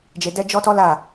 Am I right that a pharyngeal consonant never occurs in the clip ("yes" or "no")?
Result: yes